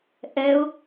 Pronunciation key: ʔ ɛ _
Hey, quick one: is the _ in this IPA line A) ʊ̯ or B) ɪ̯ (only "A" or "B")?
A